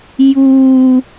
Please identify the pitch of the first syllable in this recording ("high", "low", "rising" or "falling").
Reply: high